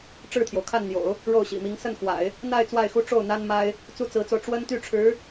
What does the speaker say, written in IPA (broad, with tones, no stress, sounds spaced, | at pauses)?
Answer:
ʈ͡ʂ ɻ̩˥˩ t̪ʰ j o˩ ʊ̯ kʰ a˥˩ n n̪ j o̰˨˩˦ ʊ̯ | ɻ o˥˩ ʊ̯ ɕ ḭ˨˩ m i˧˥ ŋ s ə˥˩ n x w a̰˨˩˦ ɪ̯ | n̪ a˥˧ ɪ̯ t͡s w a˥˩ ɪ̯ x u˥ ʈ͡ʂ o˥˩ ʊ̯ n̪ a˥ n m a˥ ɪ̯ | t͡s u˥˩ t͡s ɹ̩˧˥ t͡s o˧ ʊ̯ ʈ͡ʂ w ə˥ n t̪ y˥˩ ʈ͡ʂʰ ɻ̩˧˥